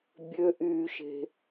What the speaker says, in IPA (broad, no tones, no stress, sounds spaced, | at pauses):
bʲ ø ʔ yː ʃ e̤